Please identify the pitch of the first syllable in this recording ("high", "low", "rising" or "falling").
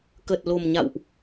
low